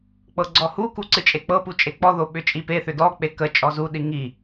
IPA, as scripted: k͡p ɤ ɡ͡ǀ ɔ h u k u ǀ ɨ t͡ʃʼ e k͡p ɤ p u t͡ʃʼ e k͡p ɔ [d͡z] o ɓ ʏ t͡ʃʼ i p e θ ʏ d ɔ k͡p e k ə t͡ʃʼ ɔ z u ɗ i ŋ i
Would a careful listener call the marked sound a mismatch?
yes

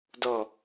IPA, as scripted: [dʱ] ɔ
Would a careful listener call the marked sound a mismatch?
yes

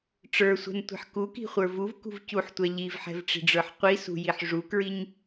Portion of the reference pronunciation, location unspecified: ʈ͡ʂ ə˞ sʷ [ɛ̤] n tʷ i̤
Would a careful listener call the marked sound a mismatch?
no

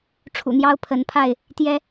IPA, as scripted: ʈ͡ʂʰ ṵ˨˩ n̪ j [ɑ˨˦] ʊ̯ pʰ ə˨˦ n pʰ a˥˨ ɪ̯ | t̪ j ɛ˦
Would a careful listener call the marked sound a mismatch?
yes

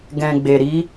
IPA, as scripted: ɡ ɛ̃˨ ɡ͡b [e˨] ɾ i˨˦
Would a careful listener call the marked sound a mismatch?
no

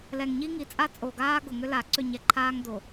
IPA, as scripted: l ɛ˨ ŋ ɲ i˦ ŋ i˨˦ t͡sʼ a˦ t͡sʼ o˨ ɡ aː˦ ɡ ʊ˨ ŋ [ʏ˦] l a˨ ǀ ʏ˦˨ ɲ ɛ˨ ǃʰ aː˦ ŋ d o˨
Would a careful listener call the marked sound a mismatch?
no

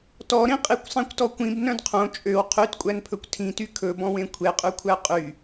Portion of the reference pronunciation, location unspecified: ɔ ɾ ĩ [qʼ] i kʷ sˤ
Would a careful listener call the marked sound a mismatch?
no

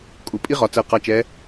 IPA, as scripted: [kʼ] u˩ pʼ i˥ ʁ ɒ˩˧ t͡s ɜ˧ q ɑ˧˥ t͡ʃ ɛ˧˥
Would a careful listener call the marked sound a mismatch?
no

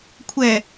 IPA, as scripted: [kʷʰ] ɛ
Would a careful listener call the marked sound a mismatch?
no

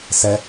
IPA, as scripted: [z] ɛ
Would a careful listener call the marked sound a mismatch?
yes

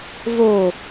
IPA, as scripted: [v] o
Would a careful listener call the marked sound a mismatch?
no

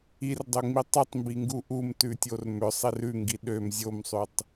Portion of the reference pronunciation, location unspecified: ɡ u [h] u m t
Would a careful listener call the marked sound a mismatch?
yes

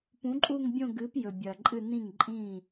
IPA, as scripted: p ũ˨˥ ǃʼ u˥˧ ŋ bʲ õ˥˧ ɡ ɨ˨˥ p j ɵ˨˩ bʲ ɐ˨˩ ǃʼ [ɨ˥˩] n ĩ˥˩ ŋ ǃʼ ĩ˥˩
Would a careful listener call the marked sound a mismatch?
yes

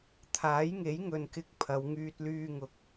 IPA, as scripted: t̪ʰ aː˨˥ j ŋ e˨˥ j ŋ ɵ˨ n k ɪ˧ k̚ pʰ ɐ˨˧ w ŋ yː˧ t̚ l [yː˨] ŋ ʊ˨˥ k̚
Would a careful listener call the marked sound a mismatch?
yes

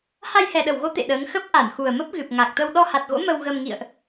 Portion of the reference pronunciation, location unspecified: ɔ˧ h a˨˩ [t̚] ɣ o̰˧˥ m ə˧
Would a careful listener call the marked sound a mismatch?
no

